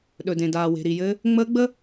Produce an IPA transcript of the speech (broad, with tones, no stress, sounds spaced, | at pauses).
ɗ ɵ˨ d ẽ˨ d aː˨ w e̤˨ ɾ i˨ j ɘ˦ | ŋ͡m əː˦ ɡ͡b ə˦